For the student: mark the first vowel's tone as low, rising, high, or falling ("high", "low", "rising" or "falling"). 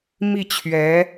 falling